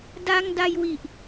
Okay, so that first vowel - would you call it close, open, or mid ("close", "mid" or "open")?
open